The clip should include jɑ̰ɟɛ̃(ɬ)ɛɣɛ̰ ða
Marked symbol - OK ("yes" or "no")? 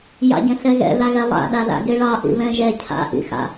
yes